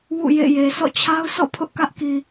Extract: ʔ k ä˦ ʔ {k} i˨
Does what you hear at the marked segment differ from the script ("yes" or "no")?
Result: no